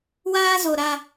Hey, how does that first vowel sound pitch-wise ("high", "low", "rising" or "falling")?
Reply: high